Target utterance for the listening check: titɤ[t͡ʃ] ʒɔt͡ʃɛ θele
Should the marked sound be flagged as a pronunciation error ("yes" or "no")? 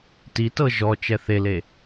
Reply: yes